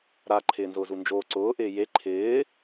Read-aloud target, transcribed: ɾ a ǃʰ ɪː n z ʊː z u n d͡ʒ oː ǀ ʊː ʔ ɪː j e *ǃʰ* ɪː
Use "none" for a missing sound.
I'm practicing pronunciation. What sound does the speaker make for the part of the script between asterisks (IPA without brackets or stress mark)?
ǃʰ